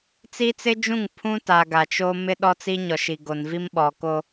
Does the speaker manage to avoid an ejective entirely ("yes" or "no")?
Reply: yes